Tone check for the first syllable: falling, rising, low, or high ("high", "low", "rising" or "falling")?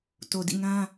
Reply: low